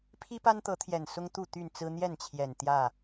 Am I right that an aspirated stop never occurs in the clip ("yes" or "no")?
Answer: no